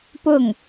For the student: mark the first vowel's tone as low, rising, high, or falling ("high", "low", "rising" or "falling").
falling